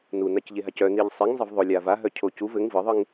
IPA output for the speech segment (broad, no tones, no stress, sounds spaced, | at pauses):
n u n a c ʎ e ɦ a c œ n i ʎ sˤ i ŋ zˤ ə v ðˤ o lʲ a v a ɦ œ cʰ o c u v ɘ ŋ v ɯ ðˤ ɯ ŋ